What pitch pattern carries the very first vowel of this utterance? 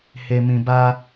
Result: low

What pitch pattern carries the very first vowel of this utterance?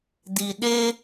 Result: low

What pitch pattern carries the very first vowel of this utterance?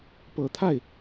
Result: low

